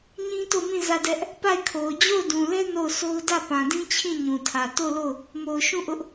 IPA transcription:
ɲ ĩ˦ t o˦˨ m ĩ˦˨ z ä˦˨ d ɛ˦ ʔ | p a˦˨ ɪ̯ kʰ o˨ ʊ̯ d͡ʑ o˦˨ ʊ̯ d ũ˨ l ɛ˦ n o˦˨ ʊ̯ sʰ o˦ ʊ̯ d ä˦˨ p ã˨ d ĩ˦ t͡ɕʰ ĩ˦˨ ɲ ũ˨ tʰ ä˨ t o˦˨ ʊ̯ l o˦˨ ʊ̯ | m o˨ ʊ̯ ʃ ũ˦˨ ʔ ʊ˦ ʔ

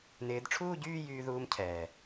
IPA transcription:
n ɪː˨˦ d ʈ͡ʂʰ uː˥˧ ɟ yː˥˧ j yː˥ ð uː˥ m cʰ ɛː˨˩

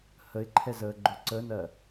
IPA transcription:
h ə ɪ̯ ǃʰ ɛ z əː ɡ͡ǃ ʊ ǀ ə n ɜ

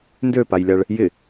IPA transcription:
n d ø p a j lʲ a ɭ | j ɪ

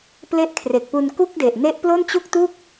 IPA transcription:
p l e˥˩ ʔ kʰ r e˨˩ k̚ p u˧ n k u˥˩ k̚ d e˨˩ ʔ n e˦˥ ʔ p l o˥˩ n t͡ɕ u˥˩ k̚ t u˥˩ k̚

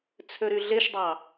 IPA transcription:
t͡sʰ ø ɾ y ɮ e ʃ dˤ ɑ

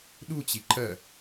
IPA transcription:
ɗ u t͡ɕ i ǃ ɜ

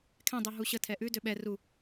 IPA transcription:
kʰ ɛ̃ dˤ ʉ ɦ u ɕ ə tʰ ɛ ʔ ʉ d ø ɓ ɛ r u

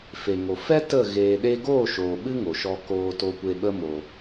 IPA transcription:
f e˨ ŋ o˨ f ɛ˦ t ə˦˨ ɣ eː˨ ɗ e˧ ɡ oː˦˨ ʃ oː˨ ɓ ɨ˦ ŋ o˨ ʃ ɔ˧ k oː˧ t o˧ kʷ e˧ ɓ ə˦ m o˧

